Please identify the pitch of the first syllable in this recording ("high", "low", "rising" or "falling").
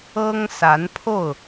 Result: high